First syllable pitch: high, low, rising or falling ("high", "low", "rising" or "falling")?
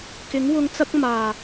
rising